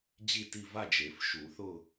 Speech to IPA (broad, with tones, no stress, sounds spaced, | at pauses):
d͡ʑ i˦˨ t i˦˨ v a˦˨ d͡ʒ e˨˩˦ f ʃ u˨˩˦ θ ʊ˦˨